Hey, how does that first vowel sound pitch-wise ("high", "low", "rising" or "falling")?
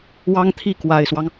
high